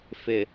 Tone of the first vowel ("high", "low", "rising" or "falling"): low